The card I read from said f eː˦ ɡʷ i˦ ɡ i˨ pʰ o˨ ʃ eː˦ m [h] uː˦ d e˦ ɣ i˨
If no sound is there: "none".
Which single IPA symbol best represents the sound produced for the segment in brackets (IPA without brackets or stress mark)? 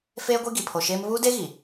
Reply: β